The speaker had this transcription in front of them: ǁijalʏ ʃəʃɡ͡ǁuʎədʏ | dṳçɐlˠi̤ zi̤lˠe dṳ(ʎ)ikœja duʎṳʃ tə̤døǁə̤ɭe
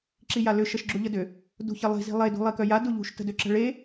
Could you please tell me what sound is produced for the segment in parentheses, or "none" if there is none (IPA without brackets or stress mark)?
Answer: lˠ